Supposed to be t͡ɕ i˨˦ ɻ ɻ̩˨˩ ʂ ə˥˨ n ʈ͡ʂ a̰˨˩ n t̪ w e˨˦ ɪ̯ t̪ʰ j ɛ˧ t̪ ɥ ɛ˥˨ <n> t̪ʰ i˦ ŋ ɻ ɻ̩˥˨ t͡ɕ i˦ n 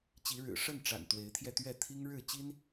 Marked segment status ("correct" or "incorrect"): incorrect